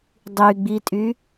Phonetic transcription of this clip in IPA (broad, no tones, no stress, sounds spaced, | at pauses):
dˤ y ɡ͡b i tʼ y